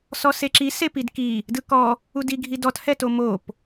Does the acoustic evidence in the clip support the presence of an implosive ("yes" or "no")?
no